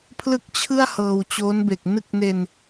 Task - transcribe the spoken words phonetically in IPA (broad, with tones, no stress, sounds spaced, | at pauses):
pʰ l ɯ˥˩ k̚ t͡ɕʰ ɯ˥˩ a̯ h ɤː˧ w t͡ɕ oː˦˥ n b e˨˩ k̚ n ɯ˥˩ k̚ n e˧ n